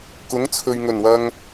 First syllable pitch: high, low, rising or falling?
rising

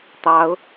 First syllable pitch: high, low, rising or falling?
rising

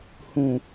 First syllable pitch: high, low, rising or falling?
low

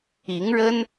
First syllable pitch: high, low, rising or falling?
rising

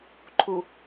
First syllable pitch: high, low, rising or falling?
low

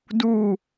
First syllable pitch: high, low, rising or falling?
falling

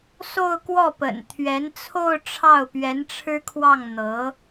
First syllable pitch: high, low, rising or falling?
falling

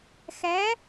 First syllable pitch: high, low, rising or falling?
rising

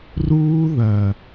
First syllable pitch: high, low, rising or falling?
high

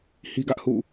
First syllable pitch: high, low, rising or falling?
high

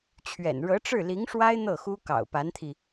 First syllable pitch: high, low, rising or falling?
low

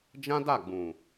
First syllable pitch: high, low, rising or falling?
high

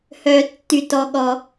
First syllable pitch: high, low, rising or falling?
low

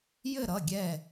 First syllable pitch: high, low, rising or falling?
falling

